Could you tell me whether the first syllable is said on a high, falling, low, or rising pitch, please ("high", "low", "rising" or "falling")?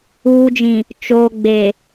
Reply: low